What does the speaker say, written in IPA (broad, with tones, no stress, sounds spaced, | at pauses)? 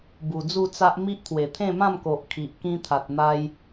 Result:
b u˨˩ d͡z u˥˧ t͡s a˦ ʔ m i˦ ʔ t̪ʰ w e˨˩ t̪ʰ ẽ˥˧ m ã˥˧ m k o˨ ʔ kʰ i˨ ʔ k ĩ˦ t̪ʰ a˨ t̚ n̪ a˦ j